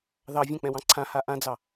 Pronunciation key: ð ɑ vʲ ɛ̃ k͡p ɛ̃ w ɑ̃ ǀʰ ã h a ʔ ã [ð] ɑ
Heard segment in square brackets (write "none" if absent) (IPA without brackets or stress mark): d͡z